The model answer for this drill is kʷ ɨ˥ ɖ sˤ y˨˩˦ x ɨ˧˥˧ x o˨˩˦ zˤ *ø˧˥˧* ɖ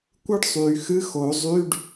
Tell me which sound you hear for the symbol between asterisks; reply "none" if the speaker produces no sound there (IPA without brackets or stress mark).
y˧˥˧